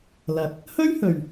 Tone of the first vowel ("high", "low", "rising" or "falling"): rising